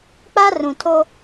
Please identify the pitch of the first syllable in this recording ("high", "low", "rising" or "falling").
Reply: high